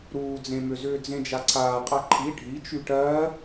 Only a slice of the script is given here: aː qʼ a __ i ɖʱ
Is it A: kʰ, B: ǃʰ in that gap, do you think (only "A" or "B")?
B